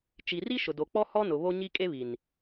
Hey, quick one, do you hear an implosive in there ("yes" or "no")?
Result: no